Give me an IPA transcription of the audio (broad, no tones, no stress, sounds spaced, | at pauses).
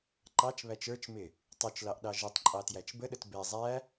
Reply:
ǃ ɑ t͡ʃ β æ t͡ʃ ə˞ t͡ʃ m ɪ | tˤ u t͡ʃ l ɑ ʔ ɗ ɑ ʒ ə tˤ ǃʼ ɑ t j æ t͡ʃ b ə ɗ ə t b ɛ zˤ æ